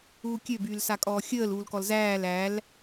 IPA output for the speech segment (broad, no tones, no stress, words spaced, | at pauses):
uːkʲø byːlsakʼɔːxʲəːl uːlkɔlzæːl æl